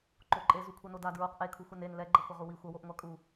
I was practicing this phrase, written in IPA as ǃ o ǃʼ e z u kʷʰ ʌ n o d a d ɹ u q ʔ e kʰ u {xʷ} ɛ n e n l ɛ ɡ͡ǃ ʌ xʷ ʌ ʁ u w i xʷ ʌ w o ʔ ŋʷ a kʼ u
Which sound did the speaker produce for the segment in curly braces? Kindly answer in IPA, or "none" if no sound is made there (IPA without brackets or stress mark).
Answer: xʷ